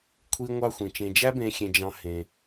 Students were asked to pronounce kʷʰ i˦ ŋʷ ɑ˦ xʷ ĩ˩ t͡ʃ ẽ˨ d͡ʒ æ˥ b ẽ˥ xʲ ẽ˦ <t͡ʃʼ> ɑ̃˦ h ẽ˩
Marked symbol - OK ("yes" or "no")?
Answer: no